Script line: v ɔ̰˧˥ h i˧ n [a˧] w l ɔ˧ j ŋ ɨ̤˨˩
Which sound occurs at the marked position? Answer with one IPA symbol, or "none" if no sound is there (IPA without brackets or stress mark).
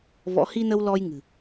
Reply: ə˧